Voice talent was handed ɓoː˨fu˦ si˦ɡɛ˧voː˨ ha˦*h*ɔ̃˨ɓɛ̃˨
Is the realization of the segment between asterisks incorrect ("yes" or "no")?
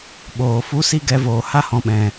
no